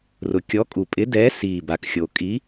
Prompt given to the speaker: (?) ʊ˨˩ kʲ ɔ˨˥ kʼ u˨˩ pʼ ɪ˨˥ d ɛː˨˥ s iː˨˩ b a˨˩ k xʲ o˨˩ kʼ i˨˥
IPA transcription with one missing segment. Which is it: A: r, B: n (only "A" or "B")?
A